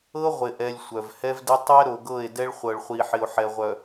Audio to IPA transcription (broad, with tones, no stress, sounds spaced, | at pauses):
ɤ˦ ʁʷ ɪ˨ ʔ ɛ˨ lʲ sʷ œ˨ v h ɛ˦ v d ɪ˦ tˤ ɛ˦ ɾ o˨ ɡ ɤ˦˨ e̯ d ɛ˦ ɭ χʷ ɤ˨ ɭ χʷ i˨ ħ ɪ˨ o̯ ħ ɛ˨ ʁʷ œ˨